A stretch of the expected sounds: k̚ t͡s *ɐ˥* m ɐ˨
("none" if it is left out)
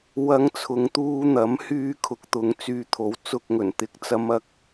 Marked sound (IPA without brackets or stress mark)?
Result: ɐ˨˧